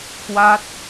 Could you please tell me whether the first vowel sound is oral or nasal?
oral